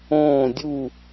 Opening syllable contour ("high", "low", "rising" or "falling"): falling